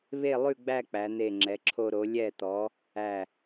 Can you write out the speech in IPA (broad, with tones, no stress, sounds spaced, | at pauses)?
β e˥˧ lˠ ʉ˥˧ ɡ͡b æ˥˧ k͡p æ˩˧ n̪ e˧˩ ŋ͡ǁ ɛ˩˧ ǁʰ o˧ ɾ o˩˧ lʲ ɛ˧˩ t̪ ɔ˩˧ | æ˧˩